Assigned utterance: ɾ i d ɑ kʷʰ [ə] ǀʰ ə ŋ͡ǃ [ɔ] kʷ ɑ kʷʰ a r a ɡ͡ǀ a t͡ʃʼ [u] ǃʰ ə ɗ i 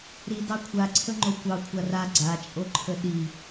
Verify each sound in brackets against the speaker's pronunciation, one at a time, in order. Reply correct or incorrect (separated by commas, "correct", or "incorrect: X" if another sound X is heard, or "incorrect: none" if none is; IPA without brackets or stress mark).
incorrect: a, incorrect: o, incorrect: o